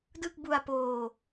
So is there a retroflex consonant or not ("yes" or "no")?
no